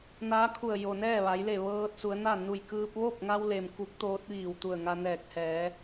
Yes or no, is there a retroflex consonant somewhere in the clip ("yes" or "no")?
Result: no